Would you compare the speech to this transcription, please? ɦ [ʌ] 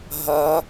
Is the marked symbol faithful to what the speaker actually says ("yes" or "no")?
yes